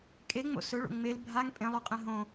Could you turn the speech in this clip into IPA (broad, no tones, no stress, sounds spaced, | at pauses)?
kʼ e ŋ͡m o̰ s ɵ ɭ o̰ ŋ͡m e l bʱ a ŋ pʼ ẽ lˠ o qʼ ẽ ɦ õ